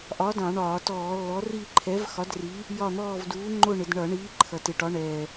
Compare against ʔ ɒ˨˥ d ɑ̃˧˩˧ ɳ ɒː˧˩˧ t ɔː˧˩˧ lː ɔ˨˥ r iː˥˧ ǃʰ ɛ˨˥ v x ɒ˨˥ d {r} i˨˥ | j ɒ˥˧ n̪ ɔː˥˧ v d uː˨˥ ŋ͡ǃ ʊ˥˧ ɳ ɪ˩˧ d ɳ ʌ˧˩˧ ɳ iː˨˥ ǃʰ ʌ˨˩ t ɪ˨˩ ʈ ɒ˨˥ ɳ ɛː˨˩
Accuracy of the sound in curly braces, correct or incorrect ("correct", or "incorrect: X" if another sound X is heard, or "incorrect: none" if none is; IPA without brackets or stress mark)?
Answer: correct